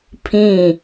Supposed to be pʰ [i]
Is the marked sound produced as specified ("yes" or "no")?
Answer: no